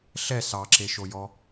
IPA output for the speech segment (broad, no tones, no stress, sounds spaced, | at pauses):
ɬ ɛ s ɑ ǁ e ʃ o j ɔ